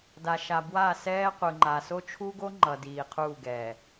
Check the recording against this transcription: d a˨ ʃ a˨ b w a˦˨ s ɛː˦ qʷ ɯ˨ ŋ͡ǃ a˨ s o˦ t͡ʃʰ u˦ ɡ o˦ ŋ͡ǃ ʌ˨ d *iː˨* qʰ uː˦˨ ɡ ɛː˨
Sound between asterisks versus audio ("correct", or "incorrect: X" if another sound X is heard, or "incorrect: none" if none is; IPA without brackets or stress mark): correct